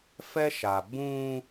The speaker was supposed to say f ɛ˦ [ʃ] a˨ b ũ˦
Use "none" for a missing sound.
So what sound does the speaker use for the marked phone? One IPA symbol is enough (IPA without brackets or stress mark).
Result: ʃ